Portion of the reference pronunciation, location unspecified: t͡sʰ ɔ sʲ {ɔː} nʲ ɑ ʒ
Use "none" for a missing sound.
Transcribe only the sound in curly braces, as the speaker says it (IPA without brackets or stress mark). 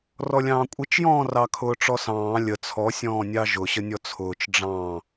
ɔ̃ː